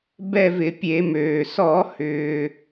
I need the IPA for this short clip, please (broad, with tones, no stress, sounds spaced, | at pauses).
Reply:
b ɛ˦˨ v ɪ˧˩˧ pʲ e˧˩˧ m øː˩ s ɔ˧˩˧ h ʏː˩